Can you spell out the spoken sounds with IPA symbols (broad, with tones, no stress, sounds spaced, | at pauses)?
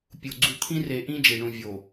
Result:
pʲ o˨ ɡ͡ǀ u˨ t̪ʰ ĩ˦ r e˨ ʔ ĩ˦ d͡ʒ e˨ ɳ ũ˨ vʲ o˨